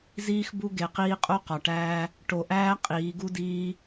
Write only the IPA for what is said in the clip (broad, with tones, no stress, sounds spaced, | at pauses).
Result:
z iː˦ x b u˦ ɡ e˨ q iː˦ qʼ o˦ q ɒ˨ ʈ æː˦ | ʈ o˨ ʔ æː˦ qʼ iː˨˦ ɡ u˦ d iː˦